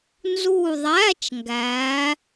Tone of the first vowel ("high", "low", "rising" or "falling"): falling